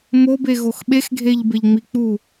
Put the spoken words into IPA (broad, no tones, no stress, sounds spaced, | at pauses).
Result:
m o b e ɣ o x ɓ e x ɡʱ e ʎ b e ʎ ŋ͡m i k͡p u